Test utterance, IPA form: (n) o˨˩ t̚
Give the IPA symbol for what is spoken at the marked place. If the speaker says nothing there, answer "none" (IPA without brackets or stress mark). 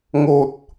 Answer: ŋ